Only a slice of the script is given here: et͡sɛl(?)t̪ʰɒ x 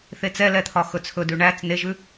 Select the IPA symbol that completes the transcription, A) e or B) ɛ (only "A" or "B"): B